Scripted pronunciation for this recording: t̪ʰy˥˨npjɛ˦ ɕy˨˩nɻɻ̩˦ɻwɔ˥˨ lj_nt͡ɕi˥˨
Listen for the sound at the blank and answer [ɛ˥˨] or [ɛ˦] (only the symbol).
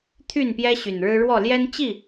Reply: ɛ˦